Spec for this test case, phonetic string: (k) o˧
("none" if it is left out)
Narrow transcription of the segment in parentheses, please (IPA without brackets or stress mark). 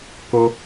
k